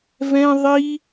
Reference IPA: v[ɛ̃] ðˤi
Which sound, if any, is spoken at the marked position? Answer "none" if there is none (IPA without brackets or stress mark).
ɛ̃